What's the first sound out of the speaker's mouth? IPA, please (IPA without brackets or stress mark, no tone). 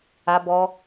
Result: a